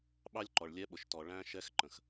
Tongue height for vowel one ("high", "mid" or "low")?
low